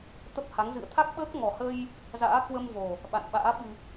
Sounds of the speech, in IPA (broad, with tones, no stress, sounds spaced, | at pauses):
t̪ ə˦˥ p̚ h a˨˦ ŋ z ɨ̰˧˨ ə̯ t̪ʰ a˦˥ k̚ ɓ əː˦˥ k̚ ŋ ɔ˨˩ h ə˧ j | z a̰ː˧˥ k w ə˧ m v o˨˩ | ɓ a̰˧˨ n ɓ a̰ː˧˥ ɓ ɨ˧